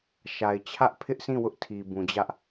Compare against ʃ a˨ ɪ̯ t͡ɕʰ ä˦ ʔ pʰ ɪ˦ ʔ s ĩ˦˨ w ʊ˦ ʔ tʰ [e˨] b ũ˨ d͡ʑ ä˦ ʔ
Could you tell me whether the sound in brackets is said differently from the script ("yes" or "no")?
yes